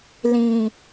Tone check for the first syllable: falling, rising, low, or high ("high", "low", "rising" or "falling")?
low